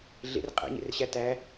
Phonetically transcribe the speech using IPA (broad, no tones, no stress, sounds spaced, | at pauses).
ɮ ḛ r qʼ æ̰ ɲ ḛ r ɕ æ t æ